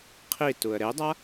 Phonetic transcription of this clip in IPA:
qʰ i t u ə̯ ɾ e dˤ a

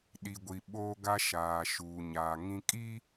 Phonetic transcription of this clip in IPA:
ɗ i˨ ɡʷ i˨ ɓ oː˦ ɡ a˦ ʃ aː˨ ʃ uː˨ ɲ aː˨ ŋ ĩ˦ kʼ i˦

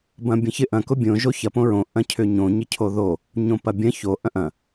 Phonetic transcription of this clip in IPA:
b ɐ̃ bʲ ɐ̃ ç ɪ ʔ ɐ̃ k ʊ bʲ õ ʒ o ç ɐ p õ ɹ õ ʔ ɐ̃ cʰ ʏ ɲ õ ɲ ɪ cʰ o ð o | ɲ õ p ɐ bʲ ɐ̃ ç o ʔ ɐ̃ ʔ ɐ̃

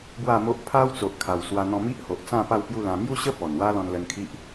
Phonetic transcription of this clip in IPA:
b w a˥˧ m o˦ ʔ pʰ a˦ w t͡s o˨ ʔ kʰ a˨˩ w s w a˧ n̪ ɔ̃˧ m i˦ ʔ h o˨ ʔ t͡s ã˥˧ p a˥˧ w p j u˥˧ l ã˧ m j u˥˧ ɕ ə˦ p ɔ˨˩ n w a˦ l ɔ̃˧ n l ə˧ n kʰ i˦ ʔ

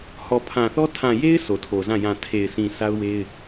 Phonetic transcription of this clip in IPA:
h ɔ˨ pʰ ã˨ θ ɔ˦ tʰ ã˨ j e˦ ɪ̯ sʰ o˨ tʰ o˨ z ã˦˨ j ã˨ tʰ e˨ ɪ̯ s ĩ˨ sʰ a˦ ʊ̯ w e˦ ɪ̯

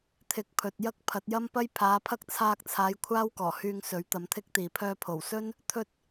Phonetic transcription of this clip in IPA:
t̪ʰ ɪ˨ k̚ pʰ ɵ˨ t̚ j ɐ˥ k̚ pʰ ɐ˨˥ t̚ j ɐ˥ m p ɐ˥ j pʰ aː˨˧ pʰ ɐ˥ k̚ t͡sʰ aː˧ k̚ t͡sʰ aː˨˧ j kʷʰ aː˥ w k ɔː˨˩ h yː˧ ŋ s ɵ˨˥ ɥ t̪ ɐ˨˧ m t̪ʰ ɪ˥ k̚ t̪ iː˨ pʰ œː˧ pʰ o˨˩ w s ɵ˥ n | t̪ʰ ɵ˧ t̚

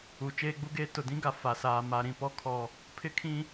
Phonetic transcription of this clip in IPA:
u˨ t͡ʃ eː˦ ɡ͡b u˦ ɡ eː˦ t ʊ˨ d ĩ˦ ɡ a˨ f a˨ s aː˨ m a˨ ɾ ĩ˨ p ɔ˦ kʰ ɔ˦ | pʰ ɪ˦ kʰ ĩ˦

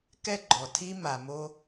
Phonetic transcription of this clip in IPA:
k ɛ˦ ɡ͡ǃ ɔ˨ tʰ i˧ m a˨ m o˧

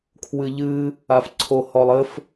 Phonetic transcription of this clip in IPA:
kʰ w ɨ ʎ ɨ | a f ǀʰ o h ɔ lˠ ɘ f

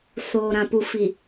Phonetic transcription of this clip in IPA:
s oː˨ ɾ ã˨ p u˨ f i˨

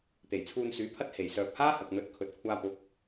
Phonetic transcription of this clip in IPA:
t̪ e˨˩ j t͡sʰ uː˧ n s yː˨˥ pʰ ɐ˥ t̚ h e˨˩ j s œː˨ p̚ h aː˥ h ɐ˨ k̚ n̪ ɵ˨˥ t̚ kʰ ɵ˨ t̚ kʷʰ aː˧ p ʊ˨˥ k̚

